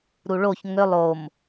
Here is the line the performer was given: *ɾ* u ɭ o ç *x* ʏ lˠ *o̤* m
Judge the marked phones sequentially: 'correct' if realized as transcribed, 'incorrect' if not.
correct, incorrect: ŋ, incorrect: o

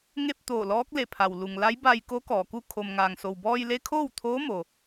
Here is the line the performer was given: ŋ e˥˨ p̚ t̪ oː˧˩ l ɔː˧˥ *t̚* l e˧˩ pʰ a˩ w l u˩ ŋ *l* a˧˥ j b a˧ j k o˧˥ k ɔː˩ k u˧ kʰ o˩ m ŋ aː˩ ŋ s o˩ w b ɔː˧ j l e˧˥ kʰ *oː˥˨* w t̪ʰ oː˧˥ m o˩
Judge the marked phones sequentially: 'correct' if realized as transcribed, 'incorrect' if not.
incorrect: k̚, correct, correct

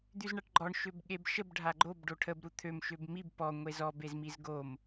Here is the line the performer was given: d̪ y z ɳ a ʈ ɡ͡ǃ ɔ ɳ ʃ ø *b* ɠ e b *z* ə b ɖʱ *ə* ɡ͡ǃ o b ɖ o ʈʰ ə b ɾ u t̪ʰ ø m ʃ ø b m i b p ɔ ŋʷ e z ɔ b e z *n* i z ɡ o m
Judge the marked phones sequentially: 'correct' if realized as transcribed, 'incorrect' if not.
correct, incorrect: ʃ, incorrect: a, incorrect: m

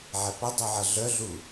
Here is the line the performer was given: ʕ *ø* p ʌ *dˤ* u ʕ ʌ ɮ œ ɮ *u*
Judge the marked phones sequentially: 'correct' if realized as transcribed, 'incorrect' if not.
incorrect: ɛ, correct, correct

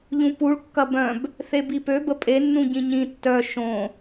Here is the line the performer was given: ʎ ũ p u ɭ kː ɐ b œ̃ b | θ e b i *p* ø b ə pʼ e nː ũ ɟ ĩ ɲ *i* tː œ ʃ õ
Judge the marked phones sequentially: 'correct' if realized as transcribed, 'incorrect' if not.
correct, incorrect: ĩ

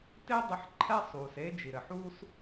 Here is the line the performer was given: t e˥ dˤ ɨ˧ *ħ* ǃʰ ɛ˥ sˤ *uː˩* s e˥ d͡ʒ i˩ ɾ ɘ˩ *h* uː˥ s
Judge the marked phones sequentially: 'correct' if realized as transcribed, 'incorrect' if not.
correct, correct, incorrect: ħ

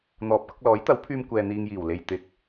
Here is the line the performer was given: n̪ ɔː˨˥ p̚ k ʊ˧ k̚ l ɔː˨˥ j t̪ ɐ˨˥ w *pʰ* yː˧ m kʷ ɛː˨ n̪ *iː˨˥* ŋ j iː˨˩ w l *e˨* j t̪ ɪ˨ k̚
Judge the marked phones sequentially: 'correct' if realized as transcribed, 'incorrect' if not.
correct, incorrect: iː˨, correct

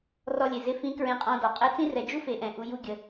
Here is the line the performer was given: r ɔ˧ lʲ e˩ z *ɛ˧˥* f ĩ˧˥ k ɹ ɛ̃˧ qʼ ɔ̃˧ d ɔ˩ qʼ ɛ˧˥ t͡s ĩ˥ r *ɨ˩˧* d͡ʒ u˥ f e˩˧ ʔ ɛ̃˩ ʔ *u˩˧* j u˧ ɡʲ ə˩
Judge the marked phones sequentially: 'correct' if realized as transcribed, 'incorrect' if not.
incorrect: ɪ˧˥, incorrect: ɛ˩˧, correct

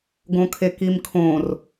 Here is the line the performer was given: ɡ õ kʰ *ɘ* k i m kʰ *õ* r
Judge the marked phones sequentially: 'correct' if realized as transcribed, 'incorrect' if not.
incorrect: e, correct

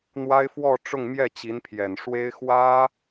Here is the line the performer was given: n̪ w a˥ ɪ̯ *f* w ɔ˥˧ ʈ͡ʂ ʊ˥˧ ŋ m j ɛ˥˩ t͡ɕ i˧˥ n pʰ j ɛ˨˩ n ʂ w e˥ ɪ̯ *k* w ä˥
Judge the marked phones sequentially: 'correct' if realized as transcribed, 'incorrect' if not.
correct, incorrect: x

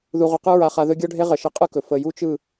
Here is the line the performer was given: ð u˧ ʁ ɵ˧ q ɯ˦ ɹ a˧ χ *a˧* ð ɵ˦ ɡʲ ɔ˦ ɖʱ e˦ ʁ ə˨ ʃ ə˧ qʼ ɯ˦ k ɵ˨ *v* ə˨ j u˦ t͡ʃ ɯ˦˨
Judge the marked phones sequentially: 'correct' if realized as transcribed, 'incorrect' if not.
correct, incorrect: f

